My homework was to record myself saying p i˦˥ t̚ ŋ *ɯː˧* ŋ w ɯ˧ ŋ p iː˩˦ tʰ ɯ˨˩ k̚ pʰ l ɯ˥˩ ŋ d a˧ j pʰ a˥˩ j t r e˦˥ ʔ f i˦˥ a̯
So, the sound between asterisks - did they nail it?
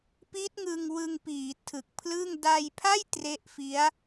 no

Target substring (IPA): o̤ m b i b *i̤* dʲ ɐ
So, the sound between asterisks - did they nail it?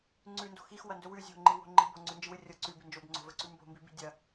yes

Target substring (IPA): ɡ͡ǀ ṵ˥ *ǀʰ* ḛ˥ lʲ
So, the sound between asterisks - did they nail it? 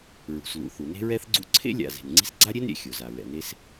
yes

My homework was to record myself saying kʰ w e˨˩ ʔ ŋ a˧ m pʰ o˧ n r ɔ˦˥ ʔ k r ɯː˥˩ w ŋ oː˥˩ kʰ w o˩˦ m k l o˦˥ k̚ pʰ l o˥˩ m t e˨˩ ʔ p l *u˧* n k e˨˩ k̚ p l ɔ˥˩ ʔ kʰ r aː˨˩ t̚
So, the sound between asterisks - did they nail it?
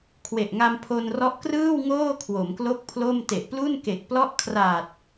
no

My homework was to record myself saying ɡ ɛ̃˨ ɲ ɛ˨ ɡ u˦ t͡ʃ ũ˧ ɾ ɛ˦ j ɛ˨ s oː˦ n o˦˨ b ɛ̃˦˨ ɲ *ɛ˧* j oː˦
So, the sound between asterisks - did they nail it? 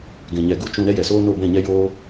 no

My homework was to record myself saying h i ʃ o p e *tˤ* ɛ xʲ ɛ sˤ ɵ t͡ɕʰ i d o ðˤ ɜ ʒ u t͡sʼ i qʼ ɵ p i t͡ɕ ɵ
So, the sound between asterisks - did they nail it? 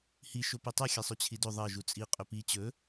yes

